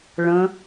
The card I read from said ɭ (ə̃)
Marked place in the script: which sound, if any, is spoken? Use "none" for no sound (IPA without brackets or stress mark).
ə̃